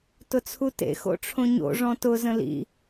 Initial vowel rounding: rounded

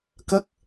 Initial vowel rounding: unrounded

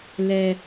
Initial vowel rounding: unrounded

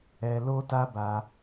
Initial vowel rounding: unrounded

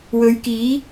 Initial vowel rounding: rounded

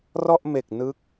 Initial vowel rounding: rounded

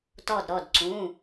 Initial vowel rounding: rounded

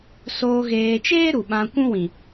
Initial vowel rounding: rounded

